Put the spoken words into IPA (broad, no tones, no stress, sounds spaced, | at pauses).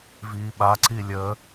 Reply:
v iː ɓ a ǀ i lʲ ə